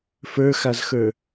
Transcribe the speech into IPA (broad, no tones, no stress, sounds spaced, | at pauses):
f ə˞ x a z x ə˞